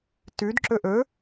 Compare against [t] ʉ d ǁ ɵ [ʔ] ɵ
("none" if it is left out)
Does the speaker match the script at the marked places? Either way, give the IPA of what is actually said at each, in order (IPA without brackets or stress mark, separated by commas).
t, ʔ